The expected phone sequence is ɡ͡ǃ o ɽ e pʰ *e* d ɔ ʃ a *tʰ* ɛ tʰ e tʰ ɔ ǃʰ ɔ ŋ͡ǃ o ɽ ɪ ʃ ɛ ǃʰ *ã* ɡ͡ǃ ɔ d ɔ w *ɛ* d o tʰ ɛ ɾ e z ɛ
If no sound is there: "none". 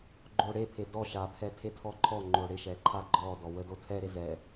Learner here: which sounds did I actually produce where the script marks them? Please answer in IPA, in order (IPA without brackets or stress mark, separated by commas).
e, pʰ, a, ə